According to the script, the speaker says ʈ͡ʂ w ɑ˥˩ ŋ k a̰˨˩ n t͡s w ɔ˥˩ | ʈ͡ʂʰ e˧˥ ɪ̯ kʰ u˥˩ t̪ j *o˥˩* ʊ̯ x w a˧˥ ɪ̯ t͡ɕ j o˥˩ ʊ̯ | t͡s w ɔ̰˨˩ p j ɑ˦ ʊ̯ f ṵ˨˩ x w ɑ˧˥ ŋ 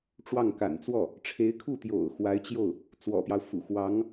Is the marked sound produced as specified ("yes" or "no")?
no